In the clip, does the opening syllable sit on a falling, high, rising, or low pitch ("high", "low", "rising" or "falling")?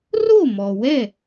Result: falling